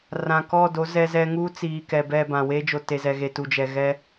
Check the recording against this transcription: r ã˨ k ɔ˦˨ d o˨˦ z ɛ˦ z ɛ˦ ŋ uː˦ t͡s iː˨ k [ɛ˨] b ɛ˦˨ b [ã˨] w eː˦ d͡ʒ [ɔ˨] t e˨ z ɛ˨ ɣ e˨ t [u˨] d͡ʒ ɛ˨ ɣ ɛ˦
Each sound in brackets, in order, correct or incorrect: correct, correct, incorrect: o˨, correct

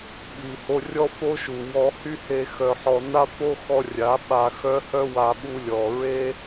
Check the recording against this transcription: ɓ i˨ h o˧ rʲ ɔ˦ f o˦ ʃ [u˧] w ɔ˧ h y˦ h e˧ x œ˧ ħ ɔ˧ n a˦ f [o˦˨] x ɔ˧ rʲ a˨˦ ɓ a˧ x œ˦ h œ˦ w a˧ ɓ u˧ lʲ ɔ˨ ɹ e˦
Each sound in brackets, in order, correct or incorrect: incorrect: u˨, incorrect: o˦

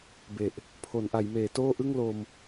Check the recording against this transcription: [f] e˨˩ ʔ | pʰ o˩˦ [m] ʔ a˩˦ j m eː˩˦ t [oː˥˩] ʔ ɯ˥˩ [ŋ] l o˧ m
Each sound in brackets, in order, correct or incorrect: incorrect: b, incorrect: n, correct, correct

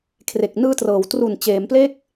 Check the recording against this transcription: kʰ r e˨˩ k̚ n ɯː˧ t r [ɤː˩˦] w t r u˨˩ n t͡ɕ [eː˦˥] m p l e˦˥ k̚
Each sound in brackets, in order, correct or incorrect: correct, incorrect: eː˩˦

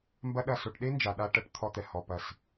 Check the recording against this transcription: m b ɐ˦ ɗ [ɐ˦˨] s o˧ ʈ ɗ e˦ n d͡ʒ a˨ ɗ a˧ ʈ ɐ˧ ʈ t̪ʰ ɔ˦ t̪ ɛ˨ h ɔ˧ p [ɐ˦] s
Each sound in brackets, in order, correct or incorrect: correct, incorrect: ɐ˨

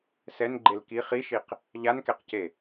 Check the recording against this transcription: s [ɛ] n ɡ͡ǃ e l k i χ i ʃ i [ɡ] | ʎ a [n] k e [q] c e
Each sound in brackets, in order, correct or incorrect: correct, incorrect: q, correct, correct

